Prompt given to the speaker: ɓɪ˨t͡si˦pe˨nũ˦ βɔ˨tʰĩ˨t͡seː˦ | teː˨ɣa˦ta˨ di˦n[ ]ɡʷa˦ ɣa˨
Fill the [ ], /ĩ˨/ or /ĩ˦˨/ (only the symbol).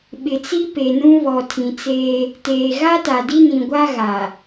ĩ˨